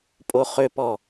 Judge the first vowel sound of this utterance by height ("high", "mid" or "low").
mid